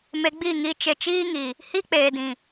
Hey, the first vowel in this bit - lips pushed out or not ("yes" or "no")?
no